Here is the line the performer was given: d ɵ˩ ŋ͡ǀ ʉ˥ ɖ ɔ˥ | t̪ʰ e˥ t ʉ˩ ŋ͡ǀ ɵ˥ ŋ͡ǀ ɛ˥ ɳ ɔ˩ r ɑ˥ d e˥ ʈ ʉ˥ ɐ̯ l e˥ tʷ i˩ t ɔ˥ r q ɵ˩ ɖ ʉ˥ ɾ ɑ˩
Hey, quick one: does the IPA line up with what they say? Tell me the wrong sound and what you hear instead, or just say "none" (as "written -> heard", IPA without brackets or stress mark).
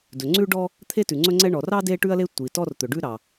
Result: q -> t̪